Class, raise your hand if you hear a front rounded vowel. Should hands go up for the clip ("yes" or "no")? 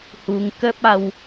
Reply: no